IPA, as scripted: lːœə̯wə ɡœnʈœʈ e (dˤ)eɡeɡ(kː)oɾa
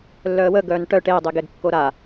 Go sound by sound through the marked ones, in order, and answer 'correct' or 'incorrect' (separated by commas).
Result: correct, correct